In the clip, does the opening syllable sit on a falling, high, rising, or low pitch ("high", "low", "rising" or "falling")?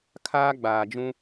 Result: high